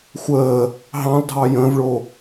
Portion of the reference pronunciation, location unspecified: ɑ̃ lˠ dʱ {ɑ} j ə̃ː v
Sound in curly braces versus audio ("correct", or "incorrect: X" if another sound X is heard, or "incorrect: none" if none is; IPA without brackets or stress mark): correct